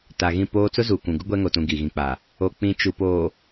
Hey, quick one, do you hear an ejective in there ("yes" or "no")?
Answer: no